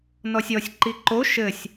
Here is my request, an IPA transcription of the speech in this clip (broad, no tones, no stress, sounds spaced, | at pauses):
n ɔ sʲ ɔ sʲ ǃ i ǃ o ʃ ɘ sʲ